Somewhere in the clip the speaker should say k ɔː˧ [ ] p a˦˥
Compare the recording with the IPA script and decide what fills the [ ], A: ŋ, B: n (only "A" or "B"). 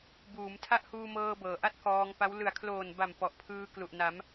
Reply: A